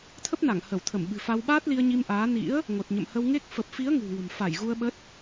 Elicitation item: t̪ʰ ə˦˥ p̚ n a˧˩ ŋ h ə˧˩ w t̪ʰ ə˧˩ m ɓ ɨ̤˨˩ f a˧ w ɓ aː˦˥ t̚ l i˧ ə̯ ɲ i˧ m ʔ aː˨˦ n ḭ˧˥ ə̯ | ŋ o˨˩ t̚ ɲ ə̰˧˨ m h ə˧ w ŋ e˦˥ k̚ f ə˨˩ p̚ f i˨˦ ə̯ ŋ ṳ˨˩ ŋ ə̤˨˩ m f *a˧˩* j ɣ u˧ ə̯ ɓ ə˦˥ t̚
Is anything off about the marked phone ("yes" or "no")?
no